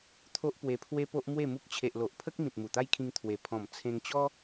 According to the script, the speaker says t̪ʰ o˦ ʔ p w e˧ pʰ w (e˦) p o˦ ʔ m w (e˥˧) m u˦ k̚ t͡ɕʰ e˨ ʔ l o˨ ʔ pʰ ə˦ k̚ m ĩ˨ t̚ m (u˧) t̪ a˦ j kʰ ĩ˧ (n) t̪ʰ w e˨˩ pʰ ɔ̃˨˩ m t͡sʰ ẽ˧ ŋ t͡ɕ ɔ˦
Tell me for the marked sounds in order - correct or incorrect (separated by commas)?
correct, correct, incorrect, incorrect